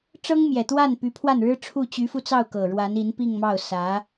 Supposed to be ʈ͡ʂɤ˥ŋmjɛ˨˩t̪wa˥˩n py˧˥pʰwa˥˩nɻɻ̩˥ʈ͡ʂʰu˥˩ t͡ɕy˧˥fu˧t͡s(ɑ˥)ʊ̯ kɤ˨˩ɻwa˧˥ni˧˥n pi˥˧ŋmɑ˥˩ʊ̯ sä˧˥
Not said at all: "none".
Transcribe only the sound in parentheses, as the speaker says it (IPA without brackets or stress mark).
ɑ˥˩